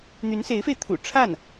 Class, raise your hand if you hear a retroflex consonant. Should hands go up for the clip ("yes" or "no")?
yes